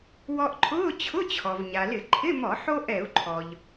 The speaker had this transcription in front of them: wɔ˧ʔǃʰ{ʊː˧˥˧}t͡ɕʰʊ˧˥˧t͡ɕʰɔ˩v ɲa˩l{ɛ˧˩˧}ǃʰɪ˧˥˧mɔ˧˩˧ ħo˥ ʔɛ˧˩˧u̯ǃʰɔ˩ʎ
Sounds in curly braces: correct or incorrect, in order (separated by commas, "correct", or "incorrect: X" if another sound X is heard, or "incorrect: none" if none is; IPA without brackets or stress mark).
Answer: correct, incorrect: ɪ˧˩˧